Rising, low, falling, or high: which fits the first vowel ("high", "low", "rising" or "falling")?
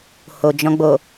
low